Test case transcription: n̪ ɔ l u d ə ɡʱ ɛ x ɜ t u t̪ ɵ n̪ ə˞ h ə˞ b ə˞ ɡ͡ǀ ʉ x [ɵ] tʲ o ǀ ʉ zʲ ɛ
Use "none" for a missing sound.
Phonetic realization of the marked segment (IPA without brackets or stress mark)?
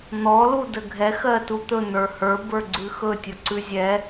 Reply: ɵ